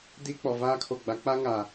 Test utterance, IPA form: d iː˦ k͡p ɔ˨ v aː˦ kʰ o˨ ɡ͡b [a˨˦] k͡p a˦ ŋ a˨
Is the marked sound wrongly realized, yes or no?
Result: no